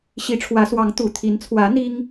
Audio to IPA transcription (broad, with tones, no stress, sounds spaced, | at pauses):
ɕ i˧˥ ʈ͡ʂʰ w ä˧˥ s w ɑ˧˥ ŋ t̪ u˨˩ t̪ʰ i˧˥ n t͡sʰ w ä˧˥ n̪ i˥ ŋ